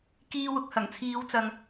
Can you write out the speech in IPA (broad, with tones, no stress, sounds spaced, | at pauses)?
k iː˧ w ʊ˨ k̚ h ɐ˨˩ ŋ t͡sʰ iː˨˧ w t͡s ɐ˨ ŋ